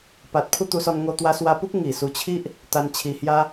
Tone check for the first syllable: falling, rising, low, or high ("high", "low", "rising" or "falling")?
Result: low